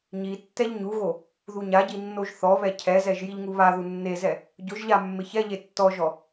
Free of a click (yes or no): yes